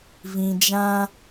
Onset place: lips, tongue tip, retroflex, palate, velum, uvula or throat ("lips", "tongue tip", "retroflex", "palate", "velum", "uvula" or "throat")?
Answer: lips